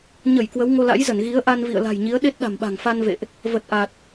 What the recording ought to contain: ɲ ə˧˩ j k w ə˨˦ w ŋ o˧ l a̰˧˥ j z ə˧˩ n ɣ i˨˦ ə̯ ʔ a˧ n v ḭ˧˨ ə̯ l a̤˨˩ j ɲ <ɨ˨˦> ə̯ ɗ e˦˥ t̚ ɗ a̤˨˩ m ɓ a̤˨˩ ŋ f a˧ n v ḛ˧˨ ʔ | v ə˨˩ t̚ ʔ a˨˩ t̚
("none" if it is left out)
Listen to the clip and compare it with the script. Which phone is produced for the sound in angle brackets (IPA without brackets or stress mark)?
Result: i˨˦